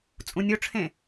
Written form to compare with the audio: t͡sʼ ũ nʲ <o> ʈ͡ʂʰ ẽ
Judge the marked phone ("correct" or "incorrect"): correct